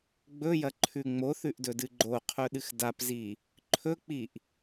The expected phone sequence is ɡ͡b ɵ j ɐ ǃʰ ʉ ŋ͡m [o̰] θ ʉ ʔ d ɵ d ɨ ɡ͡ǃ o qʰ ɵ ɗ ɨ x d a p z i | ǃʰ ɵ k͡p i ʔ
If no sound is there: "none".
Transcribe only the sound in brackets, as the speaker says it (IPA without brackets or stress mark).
o